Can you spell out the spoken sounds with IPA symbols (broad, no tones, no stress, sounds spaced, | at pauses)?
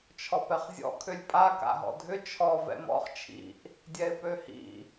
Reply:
t͡ʃʰ ɔ p ɛ χ zʲ ɔ̰ kʰ ʏ lʲ pʼ a k a̰ ɦ ɔ̰ dʱ ʏ t͡ʃʰ ɔ v ɛ̰ m ɔ̰ χ t͡ʃʰ ḭ ʔ | dʲ ɛ ɪ̯ p ø h ḭ